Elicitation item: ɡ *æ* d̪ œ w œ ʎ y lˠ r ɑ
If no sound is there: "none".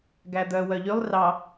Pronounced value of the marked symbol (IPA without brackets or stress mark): æ